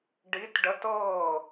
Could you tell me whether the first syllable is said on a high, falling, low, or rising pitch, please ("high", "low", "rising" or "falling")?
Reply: rising